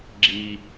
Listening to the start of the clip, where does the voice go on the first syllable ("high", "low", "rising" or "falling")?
low